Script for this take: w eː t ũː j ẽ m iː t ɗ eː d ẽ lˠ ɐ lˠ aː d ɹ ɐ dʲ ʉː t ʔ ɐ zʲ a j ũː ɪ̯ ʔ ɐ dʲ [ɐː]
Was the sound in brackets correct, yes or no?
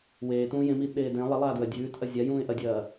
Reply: yes